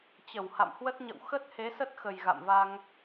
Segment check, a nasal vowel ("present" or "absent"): absent